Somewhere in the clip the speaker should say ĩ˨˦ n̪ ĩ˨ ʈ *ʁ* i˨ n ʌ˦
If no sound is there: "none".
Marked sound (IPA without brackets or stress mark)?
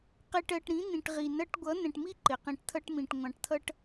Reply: ʁ